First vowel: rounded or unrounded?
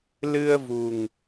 unrounded